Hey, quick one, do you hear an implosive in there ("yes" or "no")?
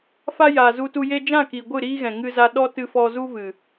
yes